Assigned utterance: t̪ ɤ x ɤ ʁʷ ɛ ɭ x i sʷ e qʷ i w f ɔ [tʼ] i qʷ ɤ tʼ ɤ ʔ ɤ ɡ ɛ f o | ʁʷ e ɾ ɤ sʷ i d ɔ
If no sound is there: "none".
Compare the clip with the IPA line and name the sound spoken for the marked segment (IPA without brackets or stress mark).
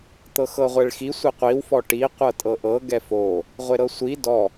ʈ